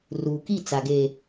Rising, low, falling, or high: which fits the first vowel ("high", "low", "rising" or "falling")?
low